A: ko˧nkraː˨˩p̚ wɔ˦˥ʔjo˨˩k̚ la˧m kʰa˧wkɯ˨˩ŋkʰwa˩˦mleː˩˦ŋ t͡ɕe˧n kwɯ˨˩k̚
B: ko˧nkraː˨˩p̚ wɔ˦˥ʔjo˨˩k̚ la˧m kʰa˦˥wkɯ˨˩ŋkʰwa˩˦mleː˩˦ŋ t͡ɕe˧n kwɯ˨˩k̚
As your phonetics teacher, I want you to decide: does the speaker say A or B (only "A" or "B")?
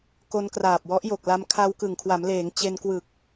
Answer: A